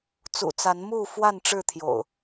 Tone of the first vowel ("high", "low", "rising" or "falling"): low